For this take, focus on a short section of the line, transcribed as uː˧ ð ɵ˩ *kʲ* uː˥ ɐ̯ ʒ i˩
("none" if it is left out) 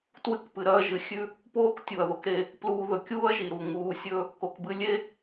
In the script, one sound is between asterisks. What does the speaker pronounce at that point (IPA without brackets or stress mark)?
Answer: kʲ